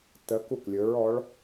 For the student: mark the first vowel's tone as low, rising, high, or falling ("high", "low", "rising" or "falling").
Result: rising